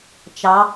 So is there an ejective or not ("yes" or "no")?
no